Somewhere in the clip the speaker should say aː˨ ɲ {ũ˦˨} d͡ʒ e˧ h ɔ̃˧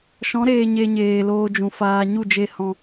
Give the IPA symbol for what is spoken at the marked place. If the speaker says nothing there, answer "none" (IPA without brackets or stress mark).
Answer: u˦˨